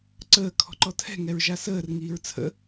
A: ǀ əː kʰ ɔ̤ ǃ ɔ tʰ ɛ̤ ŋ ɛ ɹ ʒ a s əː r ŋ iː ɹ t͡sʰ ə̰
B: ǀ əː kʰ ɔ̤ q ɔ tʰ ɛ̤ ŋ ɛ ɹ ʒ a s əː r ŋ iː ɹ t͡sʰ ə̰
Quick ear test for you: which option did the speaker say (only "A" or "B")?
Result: A